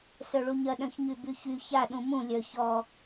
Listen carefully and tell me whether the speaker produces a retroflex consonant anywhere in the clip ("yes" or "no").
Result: yes